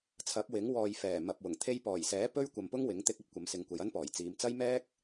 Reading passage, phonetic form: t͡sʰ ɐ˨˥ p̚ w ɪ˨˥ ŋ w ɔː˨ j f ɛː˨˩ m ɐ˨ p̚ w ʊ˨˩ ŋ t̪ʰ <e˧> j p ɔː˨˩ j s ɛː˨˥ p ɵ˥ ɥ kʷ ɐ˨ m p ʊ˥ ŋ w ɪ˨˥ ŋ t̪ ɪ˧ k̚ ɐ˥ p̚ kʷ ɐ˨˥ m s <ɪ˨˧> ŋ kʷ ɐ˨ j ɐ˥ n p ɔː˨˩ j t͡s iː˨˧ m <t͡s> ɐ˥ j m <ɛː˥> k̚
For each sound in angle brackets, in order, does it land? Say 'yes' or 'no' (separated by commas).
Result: yes, yes, yes, yes